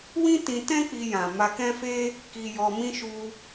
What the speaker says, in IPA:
w ĩ˦ t ĩ˧ t ɛ̃˦ k͡p i˧ j ã˨ m a˧ k ɛ̃˦ f e˦ | k i˧ j ɔ˧ m ĩ˦ ʃ u˧

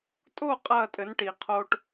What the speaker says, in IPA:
tʼ o˦˨ qʼ ɐː˦˨ tʼ ɘ˨˦ n ʈ i˨ qʰ o˦ ʈ

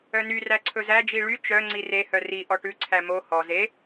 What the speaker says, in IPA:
œ n y r æ ǀʰ ɵ z æ d͡ʒ i ɭ y t͡ʃ œ ŋ͡ǀ i r e h œ r i ʔ ɔ ʈ ʉ ǀʰ æ m o h ɔ z e

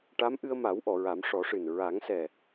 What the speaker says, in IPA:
ʈ a˧˥ m ʔ ɨ˧ ə̯ m a˨˩˦ w ʔ ɔ˨˩˨ ɹ a˨˩˦ m ʂ ɔ˨˩˦ ʂ ɨ˨˩ n ɹ a˨˩˦ ŋ s ɛ˨˩

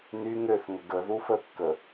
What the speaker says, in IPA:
n y ŋ ø θ ŋ ə ɡ ə ð u f ə kː ə

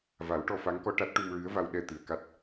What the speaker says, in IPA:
v a˨˩˦ w ʈ ɔ˧ f a˧˥ ŋ k ɔ˧ ʈ a˦˥ t̚ ʈ u˧ m ɹ ɨ˧˥ ə̯ v a˧ w ɗ ɛ˧ t̪ ɨ˨˩ ə̯ k a˦˥ t̚

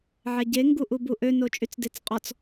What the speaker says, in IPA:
ʕ ɛ ɟ e ŋ ɡ u ʔ u b u ʔ ø n o t͡ʃʼ y t͡s d e t͡s qʼ ɔ t͡s

